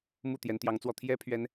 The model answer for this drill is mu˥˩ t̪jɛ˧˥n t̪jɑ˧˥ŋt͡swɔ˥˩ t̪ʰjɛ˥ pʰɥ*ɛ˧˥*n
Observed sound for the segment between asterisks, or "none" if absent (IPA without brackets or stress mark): ɛ˥